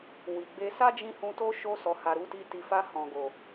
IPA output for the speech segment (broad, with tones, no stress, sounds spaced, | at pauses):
w i˨ ɡ͡b e˧ s a˦ d͡ʒ ĩ˧ h ũ˧ t o˦ ʃ o˧ s ɔ˨ h a˨ ɾ u˨˦ t i˧ t i˨ f a˧ h ɔ̃˨ ɡ o˨